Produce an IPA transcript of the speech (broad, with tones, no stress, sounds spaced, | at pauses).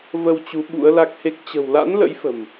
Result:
v ə˧ w t͡ɕ u˨˦ ɓ ṵ˧˥ ə̯ l a˦˥ k̚ h e˦˥ k̚ t͡ɕ ə̤˨˩ w l a̰˧˥ n l ə̰˧˥ j f ə̤˨˩ m